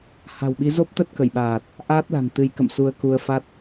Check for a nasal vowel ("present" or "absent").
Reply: absent